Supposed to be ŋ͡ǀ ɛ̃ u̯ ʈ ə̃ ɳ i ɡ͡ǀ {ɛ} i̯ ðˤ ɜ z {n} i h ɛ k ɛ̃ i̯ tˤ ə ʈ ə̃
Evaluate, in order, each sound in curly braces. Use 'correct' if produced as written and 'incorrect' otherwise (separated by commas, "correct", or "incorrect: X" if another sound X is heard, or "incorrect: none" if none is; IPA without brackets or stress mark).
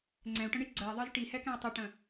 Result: incorrect: ɜ, incorrect: ʈ